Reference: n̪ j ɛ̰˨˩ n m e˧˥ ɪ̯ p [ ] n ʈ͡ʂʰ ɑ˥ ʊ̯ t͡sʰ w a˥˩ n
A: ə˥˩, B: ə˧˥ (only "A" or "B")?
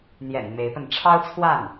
A